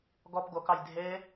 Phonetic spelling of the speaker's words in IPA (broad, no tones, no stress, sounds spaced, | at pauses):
ɡ ɔ p ɡ o k ɑ j dʱ e